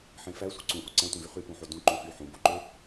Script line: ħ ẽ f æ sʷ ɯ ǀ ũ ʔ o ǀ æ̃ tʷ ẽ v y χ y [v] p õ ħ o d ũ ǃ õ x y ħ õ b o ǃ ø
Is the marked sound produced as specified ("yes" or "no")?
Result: no